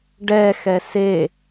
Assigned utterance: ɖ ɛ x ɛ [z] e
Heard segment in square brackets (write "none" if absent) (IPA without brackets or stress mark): s